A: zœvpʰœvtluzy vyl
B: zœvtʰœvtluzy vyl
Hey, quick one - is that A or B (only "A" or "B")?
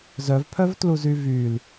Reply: A